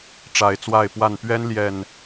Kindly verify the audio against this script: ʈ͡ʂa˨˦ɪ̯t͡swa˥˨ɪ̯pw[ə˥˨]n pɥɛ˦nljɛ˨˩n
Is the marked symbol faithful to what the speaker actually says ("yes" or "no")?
no